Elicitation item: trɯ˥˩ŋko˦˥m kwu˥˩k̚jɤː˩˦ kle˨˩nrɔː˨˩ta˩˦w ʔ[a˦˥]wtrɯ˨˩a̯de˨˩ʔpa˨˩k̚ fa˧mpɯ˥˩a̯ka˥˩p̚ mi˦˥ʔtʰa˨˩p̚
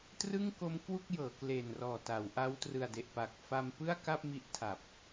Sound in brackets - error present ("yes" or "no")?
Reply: no